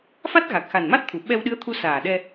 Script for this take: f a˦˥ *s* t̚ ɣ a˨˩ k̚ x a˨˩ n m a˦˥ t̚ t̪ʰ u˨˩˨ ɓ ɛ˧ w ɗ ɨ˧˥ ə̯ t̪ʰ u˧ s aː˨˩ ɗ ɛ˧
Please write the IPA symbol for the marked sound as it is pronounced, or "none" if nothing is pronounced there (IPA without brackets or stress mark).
none